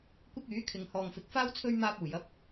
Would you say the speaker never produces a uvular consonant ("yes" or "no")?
yes